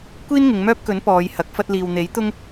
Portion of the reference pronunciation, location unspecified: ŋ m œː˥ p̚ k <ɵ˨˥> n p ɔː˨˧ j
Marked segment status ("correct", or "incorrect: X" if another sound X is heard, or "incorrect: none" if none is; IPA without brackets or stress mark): correct